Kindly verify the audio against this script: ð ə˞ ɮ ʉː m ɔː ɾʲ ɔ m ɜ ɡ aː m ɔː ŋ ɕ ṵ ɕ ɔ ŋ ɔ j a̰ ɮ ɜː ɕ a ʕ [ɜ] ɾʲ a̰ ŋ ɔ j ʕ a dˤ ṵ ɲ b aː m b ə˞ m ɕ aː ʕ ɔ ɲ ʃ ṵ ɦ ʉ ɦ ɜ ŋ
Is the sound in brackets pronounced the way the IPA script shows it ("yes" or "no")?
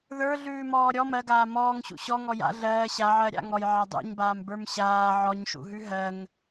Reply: yes